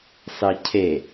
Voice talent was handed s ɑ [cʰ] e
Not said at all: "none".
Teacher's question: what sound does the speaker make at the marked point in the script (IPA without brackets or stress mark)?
cʰ